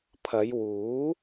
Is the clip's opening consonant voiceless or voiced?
voiceless